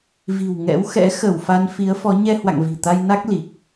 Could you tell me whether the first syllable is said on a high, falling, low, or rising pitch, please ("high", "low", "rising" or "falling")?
low